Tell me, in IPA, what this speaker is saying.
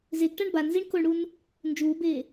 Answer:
zeɡʈaɳ banziɳ koɳɽun | nd͡ʒuːbeː

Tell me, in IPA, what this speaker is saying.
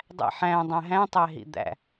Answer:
dˤæ̰ħæ̃ dˤæ̃ɦæ̃tˤæɦḭ d̪æ̰

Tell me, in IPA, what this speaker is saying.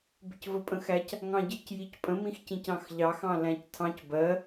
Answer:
bɪcvəpʼə̃xæc | ŋɑ̃ɟɪc jicpʼə̃ mĩxcĩcɑ̃xʎɑx ɑ̃læ̃ctʰɑ̃c bɜ

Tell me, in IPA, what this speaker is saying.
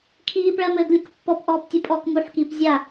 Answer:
kʰiːpɭɜmɘːɡlʲək pːɔpʔɔːptʲupʼɔːk muħkiːp zʲa

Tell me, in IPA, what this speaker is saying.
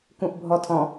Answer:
kũʔbʱɔtʰɔ̃

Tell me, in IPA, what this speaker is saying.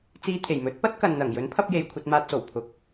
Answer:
t͡siː˧t̪ʰe˨˩jmɵ˨˥t̚ pɐ˥t̚ kɐ˨nn̪ɐ˨˩ŋ jɵ˨˥n pʰɐ˧p̚je˨j kʷʰɐ˧t̚maː˧t̚so˨˩w pʰʊ˨k̚

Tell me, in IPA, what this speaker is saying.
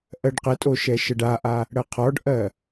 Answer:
ʔɜɖqətʼo ʃɛʃəɖaʔa | ɽɜqʰɔɖʔɜ

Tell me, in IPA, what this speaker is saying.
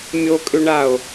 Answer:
mʲokʼʏɳao̯

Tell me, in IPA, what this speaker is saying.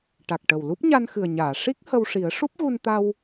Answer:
ʈa˨˩k̚ʈə˨˩w lu˦˥p̚ɲa˧n xɨ˨˩ə̯ɲaː˨˩˨ ʂi˦˥k̚ hə˧wʂi˨˩˦ə̯ ʂu˦˥p̚ɣu˧nt̪a˧w

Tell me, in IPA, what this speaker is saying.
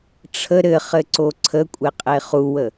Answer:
ʈ͡ʂʰə ɾɘχɘǀo ǀʰəkʷʼeqʼe χuwə

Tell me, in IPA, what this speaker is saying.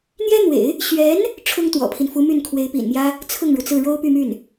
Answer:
n̪jɛ˥n̪wḛ˨˩˦ɪ̯ | ɕɥɛ˧˥n | ʈ͡ʂʰʊ˥ŋt̪wɔ̰˨˩pʰi˦nfu˧˥ my˥˩nkʰwe˧˥ɪ̯pḭ˨˩nmjä˥ | t͡sʰʊ˥˩ŋɻu˩t͡sɹ̩˥˩ ɻo˥ʊ̯ py˥˧my˥˩n

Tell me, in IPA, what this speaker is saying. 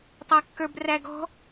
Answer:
tˤɑkːə˞bræɡɔ̤

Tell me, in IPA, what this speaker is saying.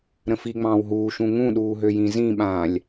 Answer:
ɾə̃fiŋ͡mɑ̃ːw ɦuː ʃũŋũɗuː ɦøjĩzĩɓãːlʲ

